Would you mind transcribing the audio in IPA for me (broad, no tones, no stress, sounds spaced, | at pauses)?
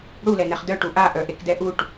ɽ u l ɛ n ɛ χ d œ ʈ u ʔ a ʔ œ ʔ e k d ɛ ʔ u ʈ